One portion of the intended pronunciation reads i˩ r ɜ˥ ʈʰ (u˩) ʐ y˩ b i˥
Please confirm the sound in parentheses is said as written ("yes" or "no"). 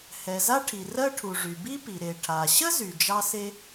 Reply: yes